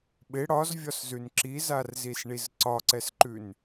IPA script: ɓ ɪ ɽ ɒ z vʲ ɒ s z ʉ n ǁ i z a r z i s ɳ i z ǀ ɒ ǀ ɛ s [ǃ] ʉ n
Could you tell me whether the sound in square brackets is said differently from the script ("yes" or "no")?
no